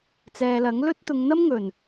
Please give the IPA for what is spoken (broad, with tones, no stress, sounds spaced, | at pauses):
t͡s ɛː˨ l ɐ˨˥ ŋ l ɵ˥ t̚ t̪ ʊ˨˧ ŋ n̪ ɐ˥ m ŋ ɵ˨˩ n